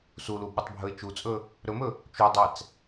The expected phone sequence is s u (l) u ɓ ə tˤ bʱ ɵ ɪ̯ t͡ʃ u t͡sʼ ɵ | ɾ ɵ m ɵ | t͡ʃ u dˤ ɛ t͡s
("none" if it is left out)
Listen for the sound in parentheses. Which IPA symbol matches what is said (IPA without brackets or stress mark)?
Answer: l